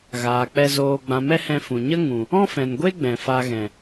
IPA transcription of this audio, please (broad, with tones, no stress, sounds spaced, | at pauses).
ɣ aː˨ k͡p ɛ˧ z oː˧ ɡ͡b ã˨ m ɛ˦ h ɛ̃˧ f ũ˨ ɲ ə˦ ŋ ũ˨ | ɔ̃˦ f ɛ̃˨ n ɡʷ e˦ ɡ͡b ɛ̃˨ f a˧ ɣ ɛ̃˨